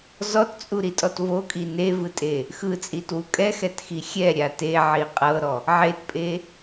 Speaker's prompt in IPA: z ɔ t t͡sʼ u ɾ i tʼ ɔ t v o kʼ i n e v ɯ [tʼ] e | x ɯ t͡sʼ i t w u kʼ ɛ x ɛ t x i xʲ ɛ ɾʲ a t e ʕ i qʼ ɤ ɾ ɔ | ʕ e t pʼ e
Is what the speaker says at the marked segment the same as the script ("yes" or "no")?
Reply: yes